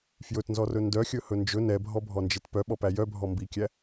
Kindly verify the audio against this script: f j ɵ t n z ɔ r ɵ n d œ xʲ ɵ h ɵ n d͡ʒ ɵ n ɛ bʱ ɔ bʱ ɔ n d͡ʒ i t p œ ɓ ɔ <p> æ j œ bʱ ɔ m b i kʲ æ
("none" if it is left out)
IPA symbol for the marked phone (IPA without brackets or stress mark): p